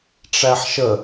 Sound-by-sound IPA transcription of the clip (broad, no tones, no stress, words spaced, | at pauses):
ʈ͡ʂæħʃə